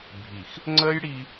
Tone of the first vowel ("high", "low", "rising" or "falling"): low